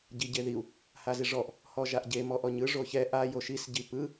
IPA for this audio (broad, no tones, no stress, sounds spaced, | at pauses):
ɟ i ɟ e ð i u̯ | h a z i ʐ ɔ ʔ | h ɔ ʒ a ʔ ɟ e m ɔ ʔ ɔ ɲ ɯ ʐ o ç ɛ ʔ a j o ʃ i s ɟ i p ɯ